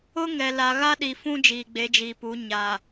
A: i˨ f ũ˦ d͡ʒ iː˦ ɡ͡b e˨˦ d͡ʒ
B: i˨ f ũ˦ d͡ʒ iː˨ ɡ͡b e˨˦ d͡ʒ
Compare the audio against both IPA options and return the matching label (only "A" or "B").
B